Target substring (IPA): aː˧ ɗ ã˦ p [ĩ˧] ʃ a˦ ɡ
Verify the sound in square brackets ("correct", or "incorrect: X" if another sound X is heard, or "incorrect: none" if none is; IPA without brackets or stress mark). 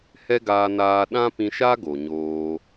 correct